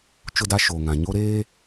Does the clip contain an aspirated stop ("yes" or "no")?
no